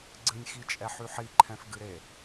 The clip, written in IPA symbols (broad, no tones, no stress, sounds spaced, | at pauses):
ɡ͡ǀ ɨ nʲ x i t͡ʃʼ ɛ ħ y ħ i ǃʰ ɛ̃ f ɡ ɨ ɾ e